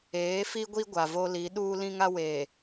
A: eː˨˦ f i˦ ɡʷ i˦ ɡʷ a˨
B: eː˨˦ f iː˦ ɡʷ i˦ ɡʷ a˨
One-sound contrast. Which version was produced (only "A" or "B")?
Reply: A